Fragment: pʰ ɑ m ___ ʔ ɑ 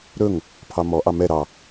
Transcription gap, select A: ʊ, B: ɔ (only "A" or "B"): B